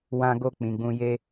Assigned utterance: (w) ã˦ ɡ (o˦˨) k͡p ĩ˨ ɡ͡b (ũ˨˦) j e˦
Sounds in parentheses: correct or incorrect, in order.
correct, correct, incorrect: ũ˧

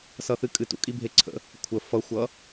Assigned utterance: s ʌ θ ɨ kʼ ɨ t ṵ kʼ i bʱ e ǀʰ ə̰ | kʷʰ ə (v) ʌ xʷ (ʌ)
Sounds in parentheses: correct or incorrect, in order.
incorrect: f, correct

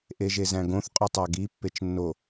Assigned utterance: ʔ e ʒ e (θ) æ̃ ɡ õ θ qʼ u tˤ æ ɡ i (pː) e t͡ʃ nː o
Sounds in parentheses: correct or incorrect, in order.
incorrect: z, correct

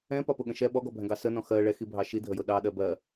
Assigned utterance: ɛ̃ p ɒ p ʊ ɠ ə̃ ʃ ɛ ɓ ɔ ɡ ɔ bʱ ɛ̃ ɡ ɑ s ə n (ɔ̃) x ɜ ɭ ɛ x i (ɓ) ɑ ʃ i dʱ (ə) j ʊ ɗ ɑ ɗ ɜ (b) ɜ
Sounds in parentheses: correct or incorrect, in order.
correct, incorrect: bʱ, correct, correct

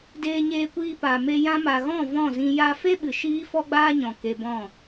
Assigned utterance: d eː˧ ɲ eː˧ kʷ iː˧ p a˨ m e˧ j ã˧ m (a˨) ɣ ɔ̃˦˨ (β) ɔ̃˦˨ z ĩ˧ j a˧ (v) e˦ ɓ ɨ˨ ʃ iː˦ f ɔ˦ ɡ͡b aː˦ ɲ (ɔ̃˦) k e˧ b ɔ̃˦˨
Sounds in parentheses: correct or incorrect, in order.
correct, incorrect: v, incorrect: f, incorrect: ɔ̃˨

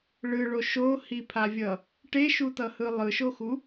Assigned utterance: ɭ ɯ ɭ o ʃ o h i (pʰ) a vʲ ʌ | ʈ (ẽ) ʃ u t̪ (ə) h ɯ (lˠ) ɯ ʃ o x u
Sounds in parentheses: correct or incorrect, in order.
correct, incorrect: e, incorrect: ʌ, correct

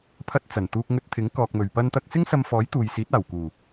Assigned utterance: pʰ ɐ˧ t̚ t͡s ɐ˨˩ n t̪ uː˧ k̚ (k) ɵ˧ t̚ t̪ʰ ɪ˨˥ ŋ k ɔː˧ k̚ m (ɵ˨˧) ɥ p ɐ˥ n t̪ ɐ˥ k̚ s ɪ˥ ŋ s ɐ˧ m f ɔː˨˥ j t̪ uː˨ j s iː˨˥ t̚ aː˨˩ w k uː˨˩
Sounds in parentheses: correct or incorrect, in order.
incorrect: ŋ, incorrect: ɵ˨

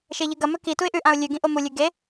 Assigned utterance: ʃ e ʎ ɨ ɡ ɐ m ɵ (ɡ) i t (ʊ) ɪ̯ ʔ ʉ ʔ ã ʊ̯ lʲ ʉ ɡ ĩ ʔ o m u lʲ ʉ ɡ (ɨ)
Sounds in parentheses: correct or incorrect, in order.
incorrect: k, incorrect: u, incorrect: e

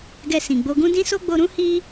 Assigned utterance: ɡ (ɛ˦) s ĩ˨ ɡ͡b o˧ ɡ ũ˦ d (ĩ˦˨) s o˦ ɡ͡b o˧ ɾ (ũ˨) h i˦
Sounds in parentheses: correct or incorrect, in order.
incorrect: ɛ˧, incorrect: ĩ˦, incorrect: ũ˦

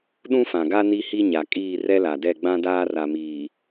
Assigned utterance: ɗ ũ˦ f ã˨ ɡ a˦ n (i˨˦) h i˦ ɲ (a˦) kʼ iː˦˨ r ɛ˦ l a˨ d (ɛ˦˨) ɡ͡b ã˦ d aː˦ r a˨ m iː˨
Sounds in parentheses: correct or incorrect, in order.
incorrect: i˦, incorrect: a˨, correct

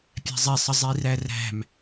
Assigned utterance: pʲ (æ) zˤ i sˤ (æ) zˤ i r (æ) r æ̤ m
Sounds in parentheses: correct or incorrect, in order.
incorrect: æ̤, incorrect: ə, correct

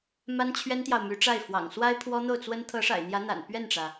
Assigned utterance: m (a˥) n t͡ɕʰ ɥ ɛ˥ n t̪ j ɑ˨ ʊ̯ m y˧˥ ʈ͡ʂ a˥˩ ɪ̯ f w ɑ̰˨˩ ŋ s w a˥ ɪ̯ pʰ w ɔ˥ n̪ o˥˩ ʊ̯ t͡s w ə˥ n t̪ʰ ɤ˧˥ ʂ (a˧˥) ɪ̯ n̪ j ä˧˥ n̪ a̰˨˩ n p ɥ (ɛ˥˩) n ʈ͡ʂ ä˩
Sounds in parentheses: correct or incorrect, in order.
correct, incorrect: a̰˨˩, correct

